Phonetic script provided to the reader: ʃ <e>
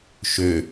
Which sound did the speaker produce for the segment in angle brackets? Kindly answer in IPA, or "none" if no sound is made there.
ø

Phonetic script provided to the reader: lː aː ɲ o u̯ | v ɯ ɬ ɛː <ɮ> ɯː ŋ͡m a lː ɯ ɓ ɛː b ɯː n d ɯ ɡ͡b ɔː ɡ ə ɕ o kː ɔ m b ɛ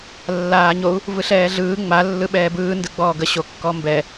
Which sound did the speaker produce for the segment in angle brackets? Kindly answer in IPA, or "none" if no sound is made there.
ɮ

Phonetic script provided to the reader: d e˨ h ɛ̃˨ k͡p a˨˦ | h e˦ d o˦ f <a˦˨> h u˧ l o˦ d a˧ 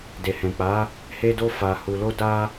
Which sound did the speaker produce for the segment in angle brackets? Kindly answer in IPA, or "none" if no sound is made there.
a˧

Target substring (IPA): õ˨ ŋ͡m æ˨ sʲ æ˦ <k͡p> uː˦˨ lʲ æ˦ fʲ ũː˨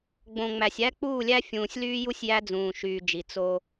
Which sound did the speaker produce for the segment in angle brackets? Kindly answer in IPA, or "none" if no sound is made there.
k͡p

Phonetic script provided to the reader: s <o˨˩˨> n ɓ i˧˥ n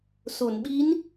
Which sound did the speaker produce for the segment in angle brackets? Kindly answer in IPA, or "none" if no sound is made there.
o˨˩˨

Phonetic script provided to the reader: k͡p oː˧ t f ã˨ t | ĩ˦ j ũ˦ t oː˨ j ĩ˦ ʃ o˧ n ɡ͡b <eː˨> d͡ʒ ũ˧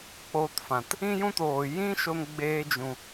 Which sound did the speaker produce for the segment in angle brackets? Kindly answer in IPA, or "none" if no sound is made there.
eː˧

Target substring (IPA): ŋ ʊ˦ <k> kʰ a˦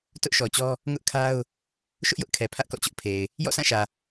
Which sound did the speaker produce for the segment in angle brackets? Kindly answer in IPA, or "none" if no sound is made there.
ʔ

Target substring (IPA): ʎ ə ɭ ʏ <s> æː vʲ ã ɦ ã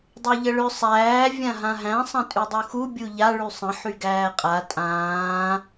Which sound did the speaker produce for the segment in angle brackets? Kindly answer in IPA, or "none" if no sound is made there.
sˤ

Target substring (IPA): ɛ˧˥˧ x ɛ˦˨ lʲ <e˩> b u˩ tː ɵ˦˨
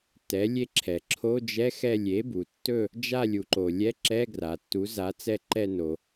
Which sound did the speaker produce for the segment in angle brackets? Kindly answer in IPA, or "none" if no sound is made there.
e˩˥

